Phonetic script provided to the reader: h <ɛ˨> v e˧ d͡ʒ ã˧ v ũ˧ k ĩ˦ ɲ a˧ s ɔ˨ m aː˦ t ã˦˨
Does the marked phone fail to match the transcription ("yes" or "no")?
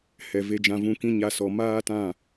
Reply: no